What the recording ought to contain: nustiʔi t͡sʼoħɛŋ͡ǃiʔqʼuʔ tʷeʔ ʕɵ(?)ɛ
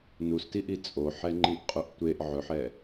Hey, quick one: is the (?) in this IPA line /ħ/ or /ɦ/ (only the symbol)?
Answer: ħ